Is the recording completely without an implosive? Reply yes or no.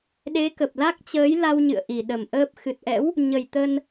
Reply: no